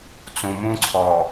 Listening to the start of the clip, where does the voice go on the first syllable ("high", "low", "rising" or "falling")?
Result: low